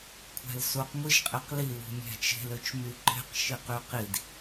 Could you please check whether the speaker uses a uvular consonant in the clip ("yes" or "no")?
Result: yes